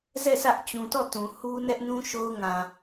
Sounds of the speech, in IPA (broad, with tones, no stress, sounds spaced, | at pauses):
z ɛ˦˨ s ä˦ ʔ t͡ɕ ũ˨ t ɔ˦˨ t ũ˨ h u˦ n ɛ˦ ʔ n ũ˦ ʃ o˦ ʊ̯ ŋ ã˨